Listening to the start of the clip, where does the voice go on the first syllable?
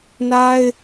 high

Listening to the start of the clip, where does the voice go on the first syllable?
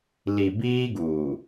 low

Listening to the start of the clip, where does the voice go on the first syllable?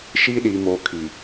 high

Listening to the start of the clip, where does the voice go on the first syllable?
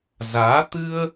rising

